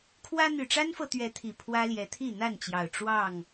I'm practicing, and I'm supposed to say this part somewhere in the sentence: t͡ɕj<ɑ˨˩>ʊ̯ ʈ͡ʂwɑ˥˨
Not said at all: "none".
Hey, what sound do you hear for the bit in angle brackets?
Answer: ɑ˨˩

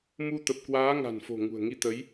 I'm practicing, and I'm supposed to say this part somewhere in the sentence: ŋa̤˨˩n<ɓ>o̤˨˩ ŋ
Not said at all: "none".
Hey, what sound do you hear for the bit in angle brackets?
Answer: f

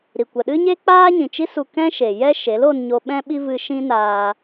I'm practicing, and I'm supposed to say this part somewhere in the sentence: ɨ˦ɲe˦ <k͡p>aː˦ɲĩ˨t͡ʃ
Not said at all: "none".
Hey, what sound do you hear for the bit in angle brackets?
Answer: k͡p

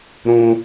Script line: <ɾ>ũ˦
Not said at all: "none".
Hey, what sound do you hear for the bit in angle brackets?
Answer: ɾ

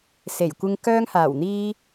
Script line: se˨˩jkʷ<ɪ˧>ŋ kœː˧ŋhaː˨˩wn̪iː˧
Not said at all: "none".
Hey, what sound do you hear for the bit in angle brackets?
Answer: ɪ˧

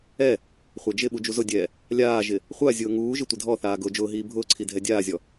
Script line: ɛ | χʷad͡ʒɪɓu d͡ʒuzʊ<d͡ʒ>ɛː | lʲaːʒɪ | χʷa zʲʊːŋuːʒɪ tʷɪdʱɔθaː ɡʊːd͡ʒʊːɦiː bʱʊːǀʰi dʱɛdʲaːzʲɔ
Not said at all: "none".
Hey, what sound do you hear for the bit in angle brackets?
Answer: dʲ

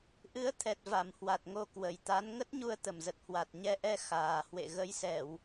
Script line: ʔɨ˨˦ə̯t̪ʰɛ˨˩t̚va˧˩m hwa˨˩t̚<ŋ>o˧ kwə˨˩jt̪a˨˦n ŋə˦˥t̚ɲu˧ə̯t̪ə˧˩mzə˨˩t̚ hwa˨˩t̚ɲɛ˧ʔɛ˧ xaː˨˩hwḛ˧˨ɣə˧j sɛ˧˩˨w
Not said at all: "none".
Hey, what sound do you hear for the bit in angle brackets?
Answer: ŋ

